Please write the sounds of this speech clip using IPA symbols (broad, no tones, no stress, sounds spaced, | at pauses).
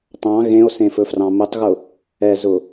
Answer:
tˤ ɑ̃ ɣ ẽ o̯ s ẽ f ɵ f r ɑ̃ m ʊ tˤ ɣ ʊ | ɛ z ʊ